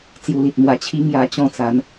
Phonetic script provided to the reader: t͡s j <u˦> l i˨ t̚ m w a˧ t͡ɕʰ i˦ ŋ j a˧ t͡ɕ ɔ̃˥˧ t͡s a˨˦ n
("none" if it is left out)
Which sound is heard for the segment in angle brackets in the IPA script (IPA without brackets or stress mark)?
u˧